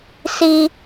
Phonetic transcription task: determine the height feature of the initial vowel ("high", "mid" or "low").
high